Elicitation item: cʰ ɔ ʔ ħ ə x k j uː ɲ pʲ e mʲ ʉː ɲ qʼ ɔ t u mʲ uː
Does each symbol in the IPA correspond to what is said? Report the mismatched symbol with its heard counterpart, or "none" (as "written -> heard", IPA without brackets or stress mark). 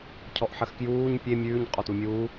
none